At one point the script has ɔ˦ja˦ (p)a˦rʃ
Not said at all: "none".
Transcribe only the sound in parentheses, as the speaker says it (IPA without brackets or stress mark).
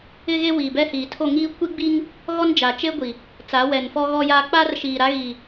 k͡p